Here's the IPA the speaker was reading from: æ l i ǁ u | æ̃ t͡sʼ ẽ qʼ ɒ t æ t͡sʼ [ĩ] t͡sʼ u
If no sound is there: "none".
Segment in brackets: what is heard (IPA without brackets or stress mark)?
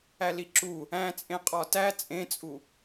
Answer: ẽ